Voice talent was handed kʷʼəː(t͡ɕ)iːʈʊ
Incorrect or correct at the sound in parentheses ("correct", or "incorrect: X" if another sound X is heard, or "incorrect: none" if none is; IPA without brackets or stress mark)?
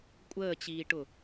correct